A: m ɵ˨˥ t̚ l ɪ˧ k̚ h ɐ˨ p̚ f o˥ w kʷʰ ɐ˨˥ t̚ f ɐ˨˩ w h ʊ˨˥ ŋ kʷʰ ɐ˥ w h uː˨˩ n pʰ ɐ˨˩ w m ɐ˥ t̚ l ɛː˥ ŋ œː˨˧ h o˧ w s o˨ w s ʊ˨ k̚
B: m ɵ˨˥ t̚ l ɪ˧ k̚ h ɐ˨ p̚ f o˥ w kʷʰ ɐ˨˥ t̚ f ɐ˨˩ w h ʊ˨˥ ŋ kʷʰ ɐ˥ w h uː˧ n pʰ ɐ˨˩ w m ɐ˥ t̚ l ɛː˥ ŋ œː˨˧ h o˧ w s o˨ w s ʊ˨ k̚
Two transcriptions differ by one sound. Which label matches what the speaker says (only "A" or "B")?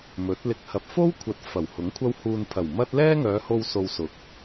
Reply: B